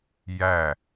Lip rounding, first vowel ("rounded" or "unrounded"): unrounded